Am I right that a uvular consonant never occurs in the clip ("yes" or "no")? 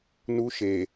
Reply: yes